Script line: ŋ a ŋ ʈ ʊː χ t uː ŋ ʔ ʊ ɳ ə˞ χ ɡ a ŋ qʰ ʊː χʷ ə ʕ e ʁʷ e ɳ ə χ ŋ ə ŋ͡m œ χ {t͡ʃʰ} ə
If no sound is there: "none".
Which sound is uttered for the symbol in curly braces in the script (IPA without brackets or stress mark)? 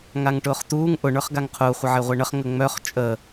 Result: t͡ʃʼ